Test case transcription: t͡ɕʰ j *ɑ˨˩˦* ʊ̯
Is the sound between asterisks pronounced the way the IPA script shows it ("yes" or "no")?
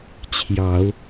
yes